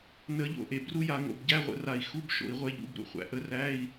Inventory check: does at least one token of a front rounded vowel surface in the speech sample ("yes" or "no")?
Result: no